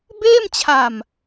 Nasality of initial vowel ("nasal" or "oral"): oral